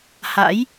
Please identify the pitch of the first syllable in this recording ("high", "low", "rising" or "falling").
rising